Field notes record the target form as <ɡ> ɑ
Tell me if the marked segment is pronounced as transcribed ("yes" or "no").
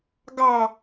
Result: yes